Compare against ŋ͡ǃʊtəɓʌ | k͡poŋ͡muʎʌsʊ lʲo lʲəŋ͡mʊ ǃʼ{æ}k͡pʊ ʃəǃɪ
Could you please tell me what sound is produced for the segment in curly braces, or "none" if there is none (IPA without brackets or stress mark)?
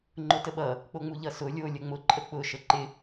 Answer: ə